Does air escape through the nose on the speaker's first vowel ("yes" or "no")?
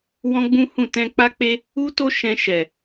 yes